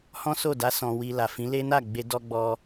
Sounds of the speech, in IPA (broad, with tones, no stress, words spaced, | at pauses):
hɔ̃˦so˦˨da˧ sɔ̃˧wi˧ la˨fĩ˨˦ le˦na˦˨ɡ͡be˧ dɔ˧ɡ͡bɔ˧